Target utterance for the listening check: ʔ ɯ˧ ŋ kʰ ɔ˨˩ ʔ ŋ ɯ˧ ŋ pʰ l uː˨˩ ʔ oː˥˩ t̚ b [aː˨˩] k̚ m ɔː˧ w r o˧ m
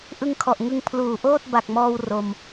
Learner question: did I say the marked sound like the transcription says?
no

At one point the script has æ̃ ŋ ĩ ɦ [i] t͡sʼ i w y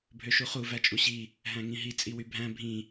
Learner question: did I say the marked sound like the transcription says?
yes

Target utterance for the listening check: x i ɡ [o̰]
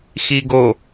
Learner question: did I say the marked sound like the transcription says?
no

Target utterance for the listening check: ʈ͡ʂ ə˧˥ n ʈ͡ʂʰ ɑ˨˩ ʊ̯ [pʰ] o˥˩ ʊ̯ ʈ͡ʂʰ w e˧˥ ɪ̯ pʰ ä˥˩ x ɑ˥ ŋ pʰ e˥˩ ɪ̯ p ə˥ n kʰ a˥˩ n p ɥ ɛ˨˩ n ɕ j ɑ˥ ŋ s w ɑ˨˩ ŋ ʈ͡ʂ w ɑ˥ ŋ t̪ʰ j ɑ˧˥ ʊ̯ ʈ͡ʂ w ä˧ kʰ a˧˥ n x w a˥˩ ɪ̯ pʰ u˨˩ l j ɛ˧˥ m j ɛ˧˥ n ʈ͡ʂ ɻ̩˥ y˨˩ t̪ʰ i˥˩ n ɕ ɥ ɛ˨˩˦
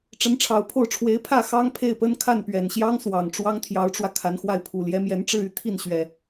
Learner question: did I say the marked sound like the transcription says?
yes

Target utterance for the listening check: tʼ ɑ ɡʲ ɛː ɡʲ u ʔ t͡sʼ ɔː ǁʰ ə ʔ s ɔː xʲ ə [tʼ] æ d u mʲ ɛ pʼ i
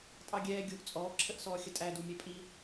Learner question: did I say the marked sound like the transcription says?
yes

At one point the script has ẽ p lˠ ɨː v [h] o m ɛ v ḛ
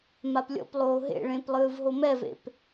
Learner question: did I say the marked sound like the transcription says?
no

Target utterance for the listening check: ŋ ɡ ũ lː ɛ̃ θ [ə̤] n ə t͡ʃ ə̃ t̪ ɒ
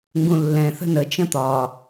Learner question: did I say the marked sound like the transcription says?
yes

